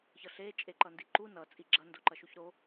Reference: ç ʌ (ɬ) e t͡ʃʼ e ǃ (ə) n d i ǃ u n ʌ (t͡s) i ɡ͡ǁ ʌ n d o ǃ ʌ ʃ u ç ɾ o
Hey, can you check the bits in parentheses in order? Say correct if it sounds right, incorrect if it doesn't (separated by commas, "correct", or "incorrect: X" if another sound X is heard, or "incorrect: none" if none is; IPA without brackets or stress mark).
correct, incorrect: ʌ, incorrect: t͡sʼ